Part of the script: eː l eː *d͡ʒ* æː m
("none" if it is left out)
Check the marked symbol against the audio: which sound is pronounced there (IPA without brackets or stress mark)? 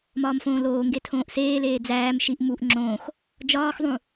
d͡z